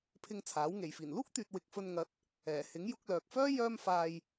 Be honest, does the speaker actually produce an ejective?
no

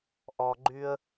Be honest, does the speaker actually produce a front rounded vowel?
yes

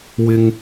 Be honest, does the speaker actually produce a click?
no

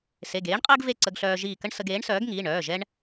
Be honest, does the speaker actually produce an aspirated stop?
no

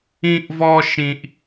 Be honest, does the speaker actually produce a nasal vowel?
yes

